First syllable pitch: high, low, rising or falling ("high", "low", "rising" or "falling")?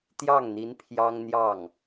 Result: falling